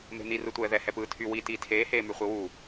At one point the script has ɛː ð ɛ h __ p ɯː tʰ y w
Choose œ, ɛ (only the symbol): ɛ